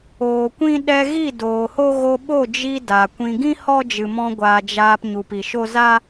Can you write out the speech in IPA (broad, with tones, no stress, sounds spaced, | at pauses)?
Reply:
oː˨ kʷ ĩ˦ ɗ ɛ˧ ɣ i˦˨ d oː˨ h o˦ ɣ o˧ ɓ o˦˨ d͡ʒ i˧ d a˨ kʷ ĩ˨ ɡ ĩ˦ h ɔ˦ d͡ʒ ɨ˨ m ɔ̃˧ ɡʷ a˨ d͡ʒ aː˧ p ɲ u˨ p i˨ ʃ o˦ z a˦